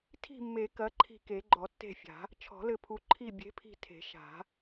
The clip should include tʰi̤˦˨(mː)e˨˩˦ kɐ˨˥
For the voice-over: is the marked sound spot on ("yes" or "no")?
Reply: yes